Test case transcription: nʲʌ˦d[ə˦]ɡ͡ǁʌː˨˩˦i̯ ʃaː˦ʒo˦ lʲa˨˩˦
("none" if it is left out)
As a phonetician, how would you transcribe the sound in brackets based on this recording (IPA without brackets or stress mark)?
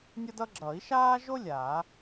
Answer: ʌ˦